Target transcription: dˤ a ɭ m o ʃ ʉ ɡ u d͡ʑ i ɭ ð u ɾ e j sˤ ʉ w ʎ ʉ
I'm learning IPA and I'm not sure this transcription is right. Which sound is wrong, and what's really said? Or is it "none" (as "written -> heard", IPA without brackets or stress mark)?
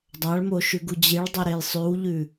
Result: ð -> dˤ